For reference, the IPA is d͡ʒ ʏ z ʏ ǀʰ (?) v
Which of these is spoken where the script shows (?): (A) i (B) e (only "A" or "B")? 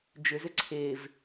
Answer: B